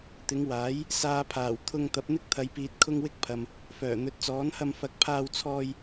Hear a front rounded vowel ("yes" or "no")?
yes